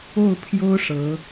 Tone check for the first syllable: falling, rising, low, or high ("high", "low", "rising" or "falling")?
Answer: falling